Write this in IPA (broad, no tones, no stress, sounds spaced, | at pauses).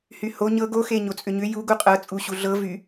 h y h o ɲ ɤ ɡ o x e ɲ o t͡sʼ ʏ ɲ ʏ j u ɡ u qʼ ɤ t͡sʼ u ɕ u ɮ ɤ v y